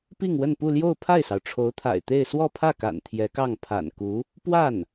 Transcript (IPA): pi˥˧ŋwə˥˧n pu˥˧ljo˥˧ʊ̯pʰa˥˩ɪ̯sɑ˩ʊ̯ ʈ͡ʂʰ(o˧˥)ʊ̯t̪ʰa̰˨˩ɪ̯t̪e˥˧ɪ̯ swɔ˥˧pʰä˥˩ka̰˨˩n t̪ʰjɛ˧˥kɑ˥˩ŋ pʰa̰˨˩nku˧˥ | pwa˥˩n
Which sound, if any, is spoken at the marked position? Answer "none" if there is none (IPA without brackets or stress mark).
o˧˥